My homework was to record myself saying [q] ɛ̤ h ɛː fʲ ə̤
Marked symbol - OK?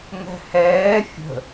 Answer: no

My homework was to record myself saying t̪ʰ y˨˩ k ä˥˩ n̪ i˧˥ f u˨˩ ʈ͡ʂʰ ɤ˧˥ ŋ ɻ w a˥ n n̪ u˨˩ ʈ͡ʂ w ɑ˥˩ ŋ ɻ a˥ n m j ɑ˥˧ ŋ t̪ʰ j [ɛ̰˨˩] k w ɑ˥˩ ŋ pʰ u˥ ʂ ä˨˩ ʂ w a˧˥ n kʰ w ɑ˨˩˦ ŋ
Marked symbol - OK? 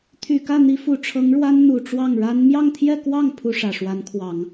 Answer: no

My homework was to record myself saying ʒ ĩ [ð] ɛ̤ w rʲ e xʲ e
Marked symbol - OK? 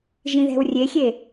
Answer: yes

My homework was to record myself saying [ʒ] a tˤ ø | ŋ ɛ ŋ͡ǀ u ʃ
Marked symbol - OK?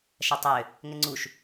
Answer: no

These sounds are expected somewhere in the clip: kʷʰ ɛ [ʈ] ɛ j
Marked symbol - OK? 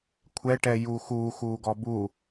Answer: yes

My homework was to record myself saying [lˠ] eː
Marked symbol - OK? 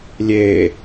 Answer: no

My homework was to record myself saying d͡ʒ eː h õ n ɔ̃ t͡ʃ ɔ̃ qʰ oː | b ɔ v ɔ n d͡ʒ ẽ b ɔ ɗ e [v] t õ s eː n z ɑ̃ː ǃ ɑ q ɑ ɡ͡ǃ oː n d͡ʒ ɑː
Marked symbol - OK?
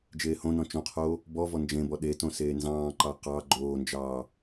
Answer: no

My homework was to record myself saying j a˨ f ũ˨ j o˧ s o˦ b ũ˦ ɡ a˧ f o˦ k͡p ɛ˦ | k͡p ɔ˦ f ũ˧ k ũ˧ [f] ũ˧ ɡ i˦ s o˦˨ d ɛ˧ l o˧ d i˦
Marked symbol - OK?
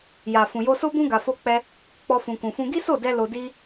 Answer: yes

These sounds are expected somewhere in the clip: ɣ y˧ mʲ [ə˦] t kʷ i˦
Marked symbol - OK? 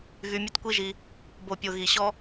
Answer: yes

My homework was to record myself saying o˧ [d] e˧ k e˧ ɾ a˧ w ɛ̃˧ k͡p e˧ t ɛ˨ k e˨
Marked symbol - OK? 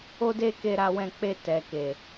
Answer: yes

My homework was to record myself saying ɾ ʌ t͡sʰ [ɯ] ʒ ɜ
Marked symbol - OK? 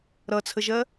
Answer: no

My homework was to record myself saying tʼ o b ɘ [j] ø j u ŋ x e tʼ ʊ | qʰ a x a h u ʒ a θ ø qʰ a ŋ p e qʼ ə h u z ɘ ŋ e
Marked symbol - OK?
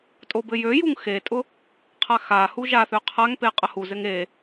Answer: yes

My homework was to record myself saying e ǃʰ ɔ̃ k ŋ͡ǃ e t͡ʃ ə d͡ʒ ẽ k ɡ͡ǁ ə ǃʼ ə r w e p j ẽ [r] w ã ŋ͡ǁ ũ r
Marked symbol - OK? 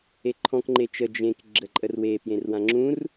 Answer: yes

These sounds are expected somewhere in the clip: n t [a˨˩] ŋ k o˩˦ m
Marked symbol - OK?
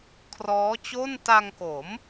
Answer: no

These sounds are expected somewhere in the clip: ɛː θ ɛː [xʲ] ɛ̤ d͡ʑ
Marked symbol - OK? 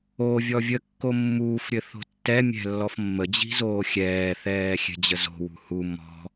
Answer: yes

